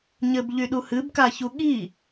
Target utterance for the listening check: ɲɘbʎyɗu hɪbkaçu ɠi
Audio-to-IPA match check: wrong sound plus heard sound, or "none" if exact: ɪ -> ɨ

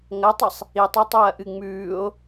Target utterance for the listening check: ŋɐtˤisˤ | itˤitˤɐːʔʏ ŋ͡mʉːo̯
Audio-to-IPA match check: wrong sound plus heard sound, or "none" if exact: ʏ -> ɨ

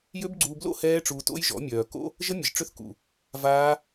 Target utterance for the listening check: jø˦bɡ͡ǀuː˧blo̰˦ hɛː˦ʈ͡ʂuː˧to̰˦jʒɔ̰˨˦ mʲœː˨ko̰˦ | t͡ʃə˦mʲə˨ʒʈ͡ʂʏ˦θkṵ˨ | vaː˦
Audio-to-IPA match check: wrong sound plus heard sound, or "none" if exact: t͡ʃ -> ʒ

